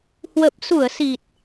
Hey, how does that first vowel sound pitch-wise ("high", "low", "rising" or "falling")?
low